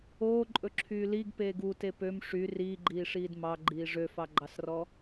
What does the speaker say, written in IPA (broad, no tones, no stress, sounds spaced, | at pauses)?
oː ǃʼ ɵ ǁʰ yː l i ɡ p eː ɡ u t e p ø m ʂ y r iː ɡ͡ǃ iː ʂ iː d m ɑ ɡ͡ǃ iː ʐ ø f ɑ ɡ͡ǃ ɑ s r ɔ